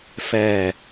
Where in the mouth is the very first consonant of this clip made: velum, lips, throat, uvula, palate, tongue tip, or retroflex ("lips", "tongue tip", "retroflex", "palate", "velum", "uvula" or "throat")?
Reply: lips